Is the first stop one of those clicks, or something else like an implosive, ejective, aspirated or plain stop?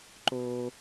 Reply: click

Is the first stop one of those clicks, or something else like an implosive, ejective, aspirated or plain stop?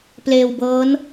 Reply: plain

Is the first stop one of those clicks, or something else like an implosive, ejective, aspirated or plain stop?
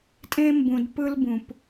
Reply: ejective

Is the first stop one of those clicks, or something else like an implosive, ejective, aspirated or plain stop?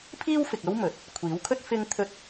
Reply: aspirated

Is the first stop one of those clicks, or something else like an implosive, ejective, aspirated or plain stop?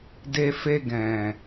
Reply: plain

